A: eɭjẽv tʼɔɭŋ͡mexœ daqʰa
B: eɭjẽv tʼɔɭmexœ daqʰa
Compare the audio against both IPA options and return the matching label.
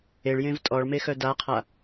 B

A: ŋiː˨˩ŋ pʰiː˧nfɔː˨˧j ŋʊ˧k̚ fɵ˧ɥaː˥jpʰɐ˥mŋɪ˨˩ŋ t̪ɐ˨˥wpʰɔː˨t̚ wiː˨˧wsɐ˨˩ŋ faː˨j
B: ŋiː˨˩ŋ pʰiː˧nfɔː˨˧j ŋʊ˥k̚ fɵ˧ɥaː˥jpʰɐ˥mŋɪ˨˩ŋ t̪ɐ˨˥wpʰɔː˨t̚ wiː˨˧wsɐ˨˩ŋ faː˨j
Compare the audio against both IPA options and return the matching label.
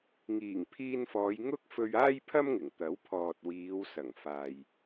B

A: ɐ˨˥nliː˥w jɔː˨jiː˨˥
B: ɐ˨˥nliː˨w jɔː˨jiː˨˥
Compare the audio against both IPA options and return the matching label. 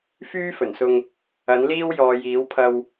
A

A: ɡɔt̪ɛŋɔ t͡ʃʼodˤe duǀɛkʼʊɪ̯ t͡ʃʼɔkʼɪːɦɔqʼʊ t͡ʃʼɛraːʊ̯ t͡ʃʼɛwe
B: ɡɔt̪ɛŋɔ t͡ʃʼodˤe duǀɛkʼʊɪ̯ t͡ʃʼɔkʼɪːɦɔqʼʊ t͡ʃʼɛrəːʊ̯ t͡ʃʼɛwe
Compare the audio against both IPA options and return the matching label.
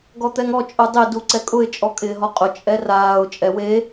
A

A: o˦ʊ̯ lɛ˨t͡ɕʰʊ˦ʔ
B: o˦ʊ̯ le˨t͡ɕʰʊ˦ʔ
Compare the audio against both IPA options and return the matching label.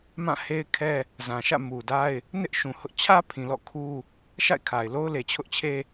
B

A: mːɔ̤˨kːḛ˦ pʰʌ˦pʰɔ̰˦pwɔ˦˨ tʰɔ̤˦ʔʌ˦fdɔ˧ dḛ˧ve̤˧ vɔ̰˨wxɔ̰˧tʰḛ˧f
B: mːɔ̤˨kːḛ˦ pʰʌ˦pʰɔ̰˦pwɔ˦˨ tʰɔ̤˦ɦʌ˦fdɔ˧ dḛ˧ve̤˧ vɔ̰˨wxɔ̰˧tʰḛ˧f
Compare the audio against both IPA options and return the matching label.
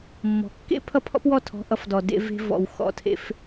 A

